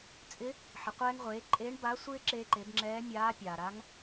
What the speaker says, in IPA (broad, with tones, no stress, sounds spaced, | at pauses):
t͡sʼ ɪ˧˥ | ħ ɪ˩ qʷ ɛː˧ ŋ ʁʷ eː˩˧ ǃʼ eː˧˥ ɳ b a˧˥ sʷ ɪː˥ ǁ eː˧ ǃ e˩˧ b ŋ͡ǁ ɛː˧˥ mʲ aː˧˥ pʲ aː˩ ɾ a˧˥ ŋ